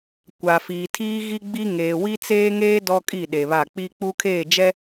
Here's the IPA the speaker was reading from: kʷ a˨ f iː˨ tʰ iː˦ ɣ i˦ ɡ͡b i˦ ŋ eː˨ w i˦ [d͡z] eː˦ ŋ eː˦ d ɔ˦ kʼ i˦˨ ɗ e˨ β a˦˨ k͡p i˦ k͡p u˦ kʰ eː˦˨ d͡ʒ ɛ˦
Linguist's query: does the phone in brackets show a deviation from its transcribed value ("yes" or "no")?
yes